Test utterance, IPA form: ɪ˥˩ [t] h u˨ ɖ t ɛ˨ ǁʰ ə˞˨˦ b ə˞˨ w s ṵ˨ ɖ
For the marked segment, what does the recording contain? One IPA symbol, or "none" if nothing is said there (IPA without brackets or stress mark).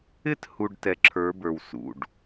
t